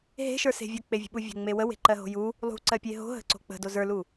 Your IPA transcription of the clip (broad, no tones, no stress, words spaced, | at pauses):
ɦe̤ʃə˞se̤ vʲok͡pevʲə̤ɓu vʲo̤ŋ͡me wəwe̤ǃɜɦo̤ ju | lˠṳǀɜpʲe ɦo̤ɦə̤ǀo̤ k͡pə̤do zə˞lu